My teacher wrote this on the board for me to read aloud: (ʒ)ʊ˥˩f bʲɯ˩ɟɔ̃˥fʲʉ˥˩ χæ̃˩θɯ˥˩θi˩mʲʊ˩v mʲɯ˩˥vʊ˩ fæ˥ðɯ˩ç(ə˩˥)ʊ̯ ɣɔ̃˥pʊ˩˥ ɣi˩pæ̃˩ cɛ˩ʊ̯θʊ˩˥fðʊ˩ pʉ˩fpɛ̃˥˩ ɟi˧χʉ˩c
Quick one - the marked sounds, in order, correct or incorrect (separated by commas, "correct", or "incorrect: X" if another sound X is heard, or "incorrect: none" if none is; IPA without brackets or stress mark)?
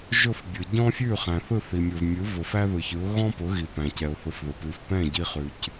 correct, incorrect: ɯ˩˥